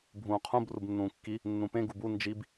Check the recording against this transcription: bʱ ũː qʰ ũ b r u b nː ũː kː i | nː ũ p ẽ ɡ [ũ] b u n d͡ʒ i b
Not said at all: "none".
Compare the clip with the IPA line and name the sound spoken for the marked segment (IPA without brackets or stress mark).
u